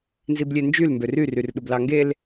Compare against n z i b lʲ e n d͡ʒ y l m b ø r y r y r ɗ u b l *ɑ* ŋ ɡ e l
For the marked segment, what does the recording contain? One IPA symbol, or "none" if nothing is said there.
ɑ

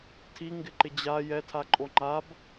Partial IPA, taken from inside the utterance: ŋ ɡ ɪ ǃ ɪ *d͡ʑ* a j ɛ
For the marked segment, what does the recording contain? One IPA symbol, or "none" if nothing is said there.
d͡ʑ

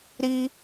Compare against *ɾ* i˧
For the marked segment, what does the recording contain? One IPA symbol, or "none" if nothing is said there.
ɾ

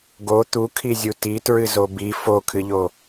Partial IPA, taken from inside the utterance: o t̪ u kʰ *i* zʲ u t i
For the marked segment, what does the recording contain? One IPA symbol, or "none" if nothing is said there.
i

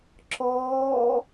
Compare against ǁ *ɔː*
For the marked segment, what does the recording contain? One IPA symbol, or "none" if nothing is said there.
ɔː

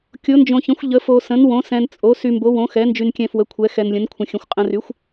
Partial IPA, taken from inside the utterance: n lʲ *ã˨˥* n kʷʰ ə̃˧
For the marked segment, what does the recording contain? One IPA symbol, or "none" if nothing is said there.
ə̃˨˥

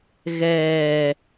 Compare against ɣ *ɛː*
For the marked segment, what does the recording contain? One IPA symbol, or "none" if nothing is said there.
ɛː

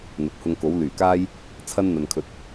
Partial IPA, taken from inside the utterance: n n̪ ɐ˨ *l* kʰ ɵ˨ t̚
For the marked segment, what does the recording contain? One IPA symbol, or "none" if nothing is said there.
n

